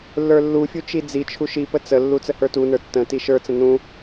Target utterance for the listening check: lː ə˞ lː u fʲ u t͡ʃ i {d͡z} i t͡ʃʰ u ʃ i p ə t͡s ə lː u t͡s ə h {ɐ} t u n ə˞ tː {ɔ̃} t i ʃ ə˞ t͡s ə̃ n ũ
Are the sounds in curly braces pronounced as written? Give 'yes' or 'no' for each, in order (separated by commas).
yes, no, no